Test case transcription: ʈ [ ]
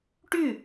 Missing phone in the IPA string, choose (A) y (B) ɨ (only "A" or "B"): A